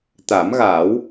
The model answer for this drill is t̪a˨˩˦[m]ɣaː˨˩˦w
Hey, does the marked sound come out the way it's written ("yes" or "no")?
yes